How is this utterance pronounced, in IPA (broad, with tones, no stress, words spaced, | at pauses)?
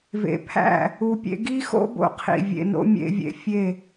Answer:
vḛ˨pʰæ̰˦˨ | u˨pʲḛ˧ɡi˦xo̰˦ bo̰˦qʰḭ˨vʲḛ˧no̰˦ mʲḛ˧vʲḛ˨ fʲe˦˨